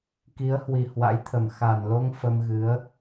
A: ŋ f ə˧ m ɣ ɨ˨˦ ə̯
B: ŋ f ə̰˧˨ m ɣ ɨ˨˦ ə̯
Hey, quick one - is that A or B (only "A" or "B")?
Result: A